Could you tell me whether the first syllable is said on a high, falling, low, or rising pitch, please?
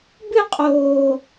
falling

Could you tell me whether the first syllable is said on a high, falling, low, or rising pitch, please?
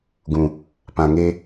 low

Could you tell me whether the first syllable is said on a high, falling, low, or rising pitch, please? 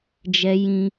high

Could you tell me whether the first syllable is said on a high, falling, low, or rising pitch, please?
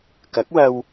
rising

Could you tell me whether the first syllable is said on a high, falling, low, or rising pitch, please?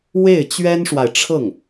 falling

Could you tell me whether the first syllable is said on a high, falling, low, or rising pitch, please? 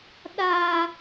high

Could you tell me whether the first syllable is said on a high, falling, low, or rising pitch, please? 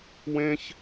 high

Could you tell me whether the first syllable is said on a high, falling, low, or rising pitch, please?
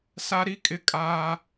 high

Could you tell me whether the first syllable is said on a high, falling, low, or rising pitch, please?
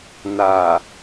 low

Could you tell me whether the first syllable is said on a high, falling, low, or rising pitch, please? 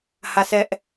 falling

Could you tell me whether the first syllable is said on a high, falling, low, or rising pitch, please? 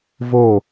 falling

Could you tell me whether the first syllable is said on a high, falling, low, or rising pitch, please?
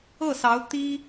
falling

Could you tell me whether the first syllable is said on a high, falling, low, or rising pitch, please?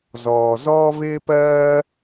low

